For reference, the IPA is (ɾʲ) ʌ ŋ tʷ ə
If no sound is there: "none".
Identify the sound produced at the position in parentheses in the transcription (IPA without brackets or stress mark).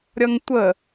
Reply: ɾʲ